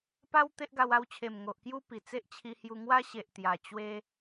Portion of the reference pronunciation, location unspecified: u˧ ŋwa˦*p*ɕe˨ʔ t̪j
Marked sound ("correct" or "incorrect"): incorrect